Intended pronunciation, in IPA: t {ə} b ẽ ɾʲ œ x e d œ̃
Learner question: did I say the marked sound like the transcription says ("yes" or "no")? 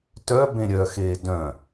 no